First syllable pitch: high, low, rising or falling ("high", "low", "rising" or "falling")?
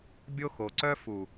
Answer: high